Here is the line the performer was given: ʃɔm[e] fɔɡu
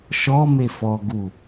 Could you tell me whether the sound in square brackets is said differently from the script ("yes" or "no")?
no